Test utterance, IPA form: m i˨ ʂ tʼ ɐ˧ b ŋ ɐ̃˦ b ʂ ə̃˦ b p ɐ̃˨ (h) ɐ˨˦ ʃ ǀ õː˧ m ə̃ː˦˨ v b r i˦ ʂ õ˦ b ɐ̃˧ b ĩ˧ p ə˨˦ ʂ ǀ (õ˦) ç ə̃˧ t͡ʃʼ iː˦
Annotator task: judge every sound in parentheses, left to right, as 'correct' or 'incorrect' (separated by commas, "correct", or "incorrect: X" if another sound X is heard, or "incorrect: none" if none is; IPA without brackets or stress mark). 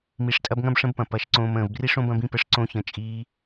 incorrect: p, correct